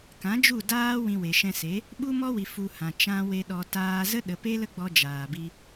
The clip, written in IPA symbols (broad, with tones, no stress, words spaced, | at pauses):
kã˨˦d͡ʒu˦˨daː˦ wĩ˧we˨ ʃɛ̃˧se˨˦ | ɓu˦mɔ˦wi˨ fu˧hã˨ t͡ʃã˧we˧ ɗɔ˨taː˧zə˦ɗə˨ pe˦lə˦ɡ͡bɔ˧ d͡ʒaː˨bi˧